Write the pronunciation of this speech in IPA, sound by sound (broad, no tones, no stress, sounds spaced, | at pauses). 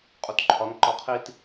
qʼ u t ǃʰ ɒ n ǃ ɒ qʰ i t